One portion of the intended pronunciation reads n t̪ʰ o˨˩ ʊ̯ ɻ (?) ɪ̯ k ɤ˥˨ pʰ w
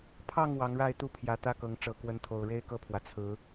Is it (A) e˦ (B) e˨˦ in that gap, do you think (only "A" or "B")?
A